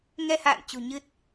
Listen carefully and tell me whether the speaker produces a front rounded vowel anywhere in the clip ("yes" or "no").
no